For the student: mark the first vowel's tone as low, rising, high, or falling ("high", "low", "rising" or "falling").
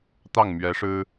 falling